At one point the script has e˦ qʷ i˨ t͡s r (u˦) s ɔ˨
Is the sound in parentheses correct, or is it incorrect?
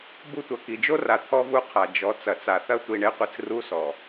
correct